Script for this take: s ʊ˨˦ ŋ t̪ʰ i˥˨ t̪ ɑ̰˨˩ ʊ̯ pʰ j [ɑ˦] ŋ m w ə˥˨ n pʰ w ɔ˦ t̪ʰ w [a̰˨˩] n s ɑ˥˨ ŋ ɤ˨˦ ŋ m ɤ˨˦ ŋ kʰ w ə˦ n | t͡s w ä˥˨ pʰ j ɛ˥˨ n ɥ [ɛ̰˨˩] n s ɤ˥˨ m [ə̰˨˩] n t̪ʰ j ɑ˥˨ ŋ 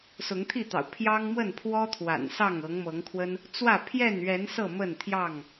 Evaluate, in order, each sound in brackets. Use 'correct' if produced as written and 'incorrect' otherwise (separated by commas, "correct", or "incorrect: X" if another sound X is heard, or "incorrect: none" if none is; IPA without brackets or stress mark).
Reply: correct, correct, incorrect: ɛ˨˦, incorrect: ə˥˨